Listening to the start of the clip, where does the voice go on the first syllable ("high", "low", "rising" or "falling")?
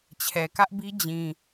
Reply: low